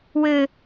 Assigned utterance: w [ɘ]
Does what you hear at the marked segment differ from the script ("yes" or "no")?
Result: no